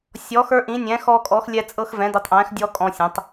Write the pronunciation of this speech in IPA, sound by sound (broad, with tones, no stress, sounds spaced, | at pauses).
sʲ ɔ˨˥ x ə˞˦ ʔ ĩ˨˥ nʲ ɛ̃˨˥ x ɔ˦ kʼ ɔ˨˥ x lʲ ɛ˦ t͡sʼ ɤ˦ x v ɛ̃˨˥ d i˨˥ tˤ ʔ ɛ̃ː˨˥ x dʲ ɔ˦ kʼ ɔ̃˦ sʲ ɛ̃˨˥ tˤ